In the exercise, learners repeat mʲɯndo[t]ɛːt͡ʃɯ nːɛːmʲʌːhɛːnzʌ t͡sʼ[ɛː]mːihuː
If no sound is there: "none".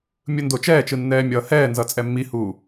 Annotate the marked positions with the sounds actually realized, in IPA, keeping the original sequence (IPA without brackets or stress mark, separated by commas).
t͡ʃ, ɛ